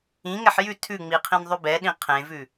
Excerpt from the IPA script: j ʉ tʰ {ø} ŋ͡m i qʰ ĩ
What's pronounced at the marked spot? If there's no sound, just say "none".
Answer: ʉ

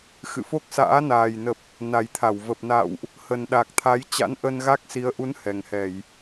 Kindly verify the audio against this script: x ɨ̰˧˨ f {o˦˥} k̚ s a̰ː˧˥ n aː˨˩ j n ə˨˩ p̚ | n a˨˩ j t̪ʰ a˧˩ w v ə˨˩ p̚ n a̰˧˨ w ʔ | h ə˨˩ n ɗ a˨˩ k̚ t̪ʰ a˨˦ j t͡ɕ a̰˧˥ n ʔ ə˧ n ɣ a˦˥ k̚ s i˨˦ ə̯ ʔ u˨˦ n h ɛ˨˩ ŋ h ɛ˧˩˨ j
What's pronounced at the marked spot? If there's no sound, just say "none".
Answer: o˦˥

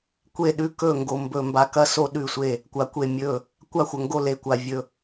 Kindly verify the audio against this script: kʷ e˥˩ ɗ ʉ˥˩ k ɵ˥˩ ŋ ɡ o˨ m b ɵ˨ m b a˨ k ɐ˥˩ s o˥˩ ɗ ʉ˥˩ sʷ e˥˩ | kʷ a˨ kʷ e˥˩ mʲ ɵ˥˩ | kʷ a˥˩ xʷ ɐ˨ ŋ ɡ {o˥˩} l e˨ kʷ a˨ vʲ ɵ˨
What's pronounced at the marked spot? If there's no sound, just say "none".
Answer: o˥˩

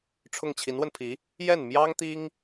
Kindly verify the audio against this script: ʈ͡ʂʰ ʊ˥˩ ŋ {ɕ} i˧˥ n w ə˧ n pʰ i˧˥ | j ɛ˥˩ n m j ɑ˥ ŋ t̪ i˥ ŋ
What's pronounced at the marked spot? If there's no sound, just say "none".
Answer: t͡ɕʰ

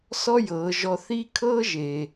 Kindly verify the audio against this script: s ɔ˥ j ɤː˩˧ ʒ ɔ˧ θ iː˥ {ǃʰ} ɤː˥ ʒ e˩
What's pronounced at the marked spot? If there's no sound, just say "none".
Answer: kʰ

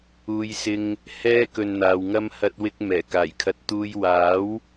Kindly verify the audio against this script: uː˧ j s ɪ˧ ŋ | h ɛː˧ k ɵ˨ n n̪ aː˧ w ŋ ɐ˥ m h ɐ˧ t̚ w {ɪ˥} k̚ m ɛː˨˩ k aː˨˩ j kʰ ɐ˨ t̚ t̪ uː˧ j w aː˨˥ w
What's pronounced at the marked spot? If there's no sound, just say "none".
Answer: ɪ˧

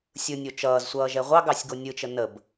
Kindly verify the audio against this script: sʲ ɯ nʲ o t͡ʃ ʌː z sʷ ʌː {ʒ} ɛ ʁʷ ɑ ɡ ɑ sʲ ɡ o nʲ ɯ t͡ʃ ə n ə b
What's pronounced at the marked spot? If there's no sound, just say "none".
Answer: ʒ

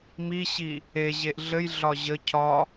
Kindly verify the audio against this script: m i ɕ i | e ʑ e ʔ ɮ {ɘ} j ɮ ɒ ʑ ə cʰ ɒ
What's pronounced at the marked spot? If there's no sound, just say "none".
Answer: ɘ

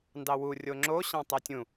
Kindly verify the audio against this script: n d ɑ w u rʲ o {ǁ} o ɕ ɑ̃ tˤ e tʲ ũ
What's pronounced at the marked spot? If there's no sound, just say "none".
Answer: ŋ͡ǁ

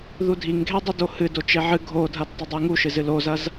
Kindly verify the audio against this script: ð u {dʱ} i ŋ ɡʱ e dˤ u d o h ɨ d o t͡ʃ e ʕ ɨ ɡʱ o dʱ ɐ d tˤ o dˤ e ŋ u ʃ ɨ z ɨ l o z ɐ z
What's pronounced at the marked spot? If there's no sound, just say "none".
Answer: dʱ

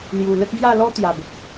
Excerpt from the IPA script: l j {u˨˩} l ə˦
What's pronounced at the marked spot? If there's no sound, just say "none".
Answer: u˨˩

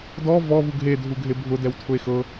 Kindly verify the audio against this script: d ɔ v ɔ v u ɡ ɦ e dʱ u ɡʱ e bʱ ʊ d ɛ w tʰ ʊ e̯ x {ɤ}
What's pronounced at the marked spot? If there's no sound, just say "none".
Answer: ɤ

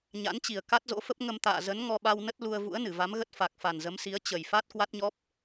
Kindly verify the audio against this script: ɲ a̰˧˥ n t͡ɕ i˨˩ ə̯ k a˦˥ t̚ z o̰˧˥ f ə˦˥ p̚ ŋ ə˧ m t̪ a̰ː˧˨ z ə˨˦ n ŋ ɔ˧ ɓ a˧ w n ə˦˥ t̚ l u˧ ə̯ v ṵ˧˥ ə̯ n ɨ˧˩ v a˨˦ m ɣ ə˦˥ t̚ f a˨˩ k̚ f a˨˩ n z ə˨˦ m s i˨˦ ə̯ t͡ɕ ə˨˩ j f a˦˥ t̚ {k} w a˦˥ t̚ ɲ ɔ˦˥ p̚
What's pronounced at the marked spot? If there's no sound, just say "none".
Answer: k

